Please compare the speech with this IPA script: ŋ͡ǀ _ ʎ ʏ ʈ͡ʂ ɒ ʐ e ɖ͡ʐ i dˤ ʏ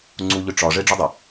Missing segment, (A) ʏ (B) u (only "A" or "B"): B